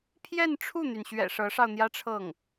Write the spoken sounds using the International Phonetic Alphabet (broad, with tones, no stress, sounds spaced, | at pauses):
pʰ j ɛ˥˧ n ʈ͡ʂʰ u˥˩ n̪ y˩ n ɕ ɥ ɛ̰˨˩ ʂ ɤ˧˥ ʂ ɑ˧ ʊ̯ n̪ j ä˥ ʈ͡ʂʰ ɤ˥˩ ŋ